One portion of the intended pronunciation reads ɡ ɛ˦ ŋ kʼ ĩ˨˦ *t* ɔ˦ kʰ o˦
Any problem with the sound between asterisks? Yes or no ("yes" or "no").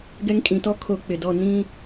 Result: no